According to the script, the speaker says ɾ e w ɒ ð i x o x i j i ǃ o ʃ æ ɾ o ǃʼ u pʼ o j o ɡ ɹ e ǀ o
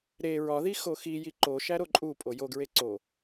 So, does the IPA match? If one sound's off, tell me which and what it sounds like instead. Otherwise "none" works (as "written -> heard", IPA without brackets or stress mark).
w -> ɹ